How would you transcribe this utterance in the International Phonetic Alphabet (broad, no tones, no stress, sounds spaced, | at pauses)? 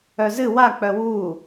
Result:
œ z ɨ w a k͡p œ w uː